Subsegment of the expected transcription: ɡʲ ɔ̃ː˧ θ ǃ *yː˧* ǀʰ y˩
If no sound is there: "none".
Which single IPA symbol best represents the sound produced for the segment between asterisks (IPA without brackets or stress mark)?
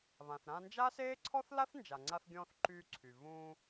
yː˧